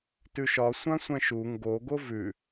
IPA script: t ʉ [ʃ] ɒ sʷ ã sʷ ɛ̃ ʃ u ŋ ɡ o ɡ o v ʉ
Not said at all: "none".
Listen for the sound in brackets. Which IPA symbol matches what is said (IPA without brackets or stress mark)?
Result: ʃ